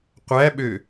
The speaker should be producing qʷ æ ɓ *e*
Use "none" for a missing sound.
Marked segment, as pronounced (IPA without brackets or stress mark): ø